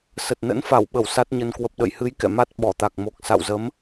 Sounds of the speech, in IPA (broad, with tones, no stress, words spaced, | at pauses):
sə˨˩t̚nə̰˧˥nfa˧˩wɓə˧˩w sa˦˥t̚ɲə˧n kwə˨˩p̚ɗə̰˧˨jhɨ˨˦j kɛ̰˧˨ma˦˥t̚ ɓɔ˧˩t̪a˨˩k̚mo˨˩k̚ sa̰˧˨wzə˨˦m